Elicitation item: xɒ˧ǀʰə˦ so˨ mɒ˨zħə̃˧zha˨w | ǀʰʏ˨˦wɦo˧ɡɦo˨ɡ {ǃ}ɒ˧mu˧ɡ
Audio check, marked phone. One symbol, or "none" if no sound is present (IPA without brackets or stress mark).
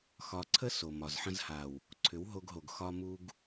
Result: x